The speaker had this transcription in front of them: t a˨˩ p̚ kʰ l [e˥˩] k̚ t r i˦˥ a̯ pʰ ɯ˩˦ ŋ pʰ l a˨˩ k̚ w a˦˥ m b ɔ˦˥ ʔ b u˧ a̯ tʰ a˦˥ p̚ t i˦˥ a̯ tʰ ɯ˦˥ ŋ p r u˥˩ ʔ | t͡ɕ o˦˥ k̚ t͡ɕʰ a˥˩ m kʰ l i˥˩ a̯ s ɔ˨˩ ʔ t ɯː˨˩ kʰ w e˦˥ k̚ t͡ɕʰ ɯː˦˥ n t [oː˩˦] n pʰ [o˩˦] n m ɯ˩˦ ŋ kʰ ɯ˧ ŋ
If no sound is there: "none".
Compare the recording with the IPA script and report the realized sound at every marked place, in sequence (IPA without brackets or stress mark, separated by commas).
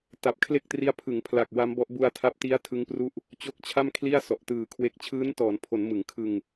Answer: e˥˩, ɔː˩˦, o˩˦